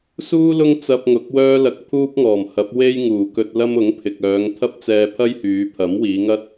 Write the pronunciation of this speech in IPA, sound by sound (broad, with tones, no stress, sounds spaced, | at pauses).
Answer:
s uː˥ l ʊ˥ ŋ t͡s ɐ˧ p̚ ŋ ʊ˨˥ k̚ w œː˥ l ɐ˧ k̚ pʰ uː˥ p̚ ŋ ɔː˨˩ m h ɐ˨˥ p̚ w e˥ j ŋ uː˨˩ k ɵ˧ t̚ l ɐ˥ m ʊ˨˥ ŋ pʰ ɪ˨ k̚ œː˨˧ ŋ t̪ʰ ɐ˥ p̚ t͡s ɛː˧ pʰ ɐ˥ j h yː˨˧ pʰ ɐ˨˥ m w iː˨˧ ŋ ɐ˥ t̚